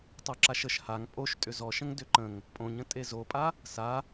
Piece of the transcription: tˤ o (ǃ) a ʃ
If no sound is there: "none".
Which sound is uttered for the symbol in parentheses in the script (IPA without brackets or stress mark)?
ǁ